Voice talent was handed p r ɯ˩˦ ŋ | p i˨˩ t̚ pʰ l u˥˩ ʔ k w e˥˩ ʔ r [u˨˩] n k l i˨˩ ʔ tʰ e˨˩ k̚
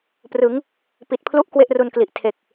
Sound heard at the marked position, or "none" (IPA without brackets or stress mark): u˧